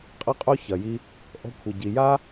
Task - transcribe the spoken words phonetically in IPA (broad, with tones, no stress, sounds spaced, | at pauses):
qʼ ɤ˦ qʼ o˦ ç ɐ˨ j i˧ | ʔ ɔ̤˧ kʷʰ ə˨ ɟ i˨ j a˦